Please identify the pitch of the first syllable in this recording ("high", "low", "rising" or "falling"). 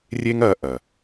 high